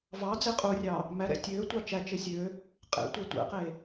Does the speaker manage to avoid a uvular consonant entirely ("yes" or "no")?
no